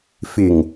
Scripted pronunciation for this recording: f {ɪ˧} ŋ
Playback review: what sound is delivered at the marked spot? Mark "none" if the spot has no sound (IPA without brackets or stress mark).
ɪ˨˩